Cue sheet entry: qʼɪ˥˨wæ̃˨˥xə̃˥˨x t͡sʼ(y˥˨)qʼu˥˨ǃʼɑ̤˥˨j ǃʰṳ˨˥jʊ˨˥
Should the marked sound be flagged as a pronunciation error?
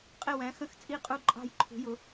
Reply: yes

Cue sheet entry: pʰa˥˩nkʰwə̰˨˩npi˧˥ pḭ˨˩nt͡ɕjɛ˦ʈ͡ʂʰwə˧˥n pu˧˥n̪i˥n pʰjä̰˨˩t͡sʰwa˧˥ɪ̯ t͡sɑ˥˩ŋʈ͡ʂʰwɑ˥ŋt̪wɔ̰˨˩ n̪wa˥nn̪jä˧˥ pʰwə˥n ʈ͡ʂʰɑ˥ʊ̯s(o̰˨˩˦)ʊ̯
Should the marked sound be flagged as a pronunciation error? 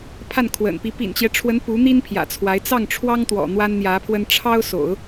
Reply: no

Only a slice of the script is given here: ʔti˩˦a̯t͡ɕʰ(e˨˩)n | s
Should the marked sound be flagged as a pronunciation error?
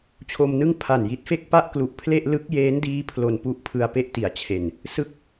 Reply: no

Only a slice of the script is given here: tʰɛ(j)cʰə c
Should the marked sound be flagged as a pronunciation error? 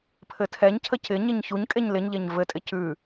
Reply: yes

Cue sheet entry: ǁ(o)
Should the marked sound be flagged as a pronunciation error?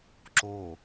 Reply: no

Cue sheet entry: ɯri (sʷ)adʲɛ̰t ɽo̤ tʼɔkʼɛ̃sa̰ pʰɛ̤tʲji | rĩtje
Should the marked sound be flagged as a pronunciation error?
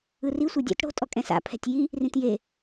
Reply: no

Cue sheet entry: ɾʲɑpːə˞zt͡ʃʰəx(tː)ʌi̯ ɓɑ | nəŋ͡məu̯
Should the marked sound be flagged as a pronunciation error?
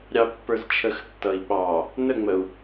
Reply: no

